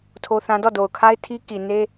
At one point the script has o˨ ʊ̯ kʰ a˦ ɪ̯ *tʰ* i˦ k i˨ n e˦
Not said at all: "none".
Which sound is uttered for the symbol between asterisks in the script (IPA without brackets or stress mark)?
tʰ